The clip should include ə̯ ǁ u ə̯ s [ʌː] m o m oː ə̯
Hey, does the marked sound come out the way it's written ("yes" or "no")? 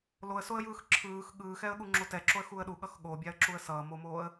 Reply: yes